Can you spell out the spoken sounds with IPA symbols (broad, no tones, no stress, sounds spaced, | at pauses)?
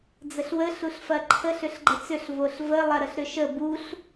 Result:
d͡z ə ɬ w ə ɬ u ɬ f ɐ ǃʰ ə ɬ ʏ ɬ ɡ͡ǃ ə t͡s ʏ ɬ v o ɬ v ə lˠ ɐ ɾ ə ɬ ɾ ʏ ʃ ə b u ɬ